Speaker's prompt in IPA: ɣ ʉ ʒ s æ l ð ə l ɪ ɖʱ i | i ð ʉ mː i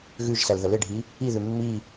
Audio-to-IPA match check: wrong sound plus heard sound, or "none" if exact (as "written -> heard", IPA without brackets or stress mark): none